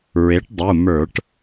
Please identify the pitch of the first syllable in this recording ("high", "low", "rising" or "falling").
rising